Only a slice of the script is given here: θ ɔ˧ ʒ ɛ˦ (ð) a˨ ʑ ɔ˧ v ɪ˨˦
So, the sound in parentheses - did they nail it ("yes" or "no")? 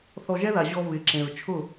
yes